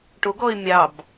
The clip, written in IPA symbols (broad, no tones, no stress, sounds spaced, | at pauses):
ʈ o ɡ ɔ ɪ̯ mʲ ɑ b